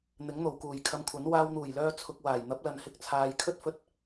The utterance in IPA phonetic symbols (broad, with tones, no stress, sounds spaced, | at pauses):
n̪ ɪ˨˥ ŋ n̪ o˨˩ w k uː˨˩ j kʰ ɐ˧ m kʷʰ ɐ˨˥ n w aː˧ w n̪ uː˨˩ j l œː˧ t͡sʰ ʊ˧ k̚ w aː˨˩ j n̪ ɐ˨˥ p̚ l ɐ˨ n h ɪ˧ k̚ t͡sʰ aː˨ j kʰ ɵ˥ t̚ f ɵ˧ t̚